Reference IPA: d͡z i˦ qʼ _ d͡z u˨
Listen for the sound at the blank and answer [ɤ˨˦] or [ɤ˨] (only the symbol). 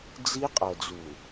ɤ˨